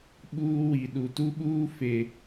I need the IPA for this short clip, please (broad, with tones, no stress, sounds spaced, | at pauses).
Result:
ɓ uː˦ w i˨ ɗ u˨ t u˦ ɓ uː˦ f e˨